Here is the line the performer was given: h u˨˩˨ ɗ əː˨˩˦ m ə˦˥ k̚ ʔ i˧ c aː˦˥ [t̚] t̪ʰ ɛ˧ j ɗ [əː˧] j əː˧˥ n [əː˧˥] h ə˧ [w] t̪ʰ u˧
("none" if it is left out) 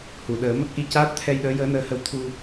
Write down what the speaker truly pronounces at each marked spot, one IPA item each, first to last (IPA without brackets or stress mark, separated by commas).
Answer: t̚, əː˧˥, əː˧˥, w